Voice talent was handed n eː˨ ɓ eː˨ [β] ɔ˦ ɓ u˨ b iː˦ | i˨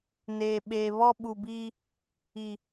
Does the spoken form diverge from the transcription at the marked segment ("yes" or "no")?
no